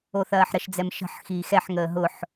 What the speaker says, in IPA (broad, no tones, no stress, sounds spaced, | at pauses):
o θ ɐː ħ ɾ ə ʃ d͡z ɛ m ʃ ə̤ ħ x iː x ɛ ħ ŋ əː ɦ ʊ ħ